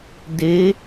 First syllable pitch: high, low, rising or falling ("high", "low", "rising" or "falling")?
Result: rising